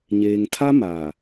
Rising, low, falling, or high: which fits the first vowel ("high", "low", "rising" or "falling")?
low